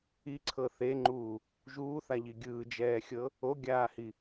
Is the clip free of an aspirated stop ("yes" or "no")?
no